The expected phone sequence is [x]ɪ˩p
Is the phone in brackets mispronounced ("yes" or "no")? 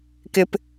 yes